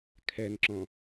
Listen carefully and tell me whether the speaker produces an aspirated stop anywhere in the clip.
yes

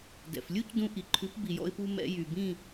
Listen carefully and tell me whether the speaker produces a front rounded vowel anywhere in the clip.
yes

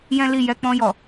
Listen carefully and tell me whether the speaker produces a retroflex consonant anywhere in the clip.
no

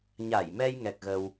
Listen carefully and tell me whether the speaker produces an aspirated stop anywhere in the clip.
no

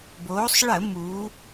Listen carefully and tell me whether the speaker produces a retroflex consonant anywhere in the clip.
yes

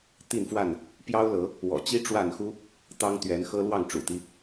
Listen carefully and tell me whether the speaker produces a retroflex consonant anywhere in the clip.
yes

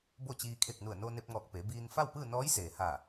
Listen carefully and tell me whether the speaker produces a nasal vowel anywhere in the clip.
no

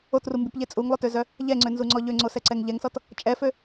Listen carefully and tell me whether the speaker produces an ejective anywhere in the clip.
yes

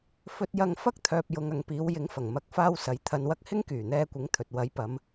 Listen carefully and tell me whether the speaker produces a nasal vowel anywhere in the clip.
no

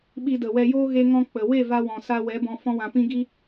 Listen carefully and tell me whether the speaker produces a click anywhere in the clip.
no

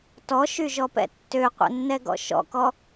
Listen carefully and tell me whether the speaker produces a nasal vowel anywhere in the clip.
no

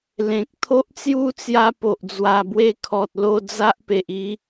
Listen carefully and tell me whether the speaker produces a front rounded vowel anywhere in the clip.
no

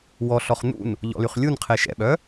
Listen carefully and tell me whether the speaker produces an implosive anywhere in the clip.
yes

